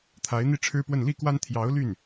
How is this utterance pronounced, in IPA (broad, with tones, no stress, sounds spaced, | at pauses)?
t̪ʰ a˧˥ ɪ̯ n̪ i˥ ʈ͡ʂʰ ɻ̩˥ p w ə˥˧ n l i˥˩ k w a˥ n t̪ʰ j ɑ˧˥ ʊ̯ l y˥˩ n